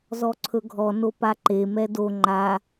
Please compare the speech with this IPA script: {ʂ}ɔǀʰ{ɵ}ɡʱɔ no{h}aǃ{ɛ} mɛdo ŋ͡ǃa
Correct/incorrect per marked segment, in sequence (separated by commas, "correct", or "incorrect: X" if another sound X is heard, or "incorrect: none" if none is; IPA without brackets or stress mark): incorrect: z, correct, incorrect: p, incorrect: e